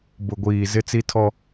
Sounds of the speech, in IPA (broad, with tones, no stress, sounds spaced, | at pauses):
b ʊ˨ ɡʷ iː˨ z ɪ˦ t͡s i˦ tʰ ɔ˦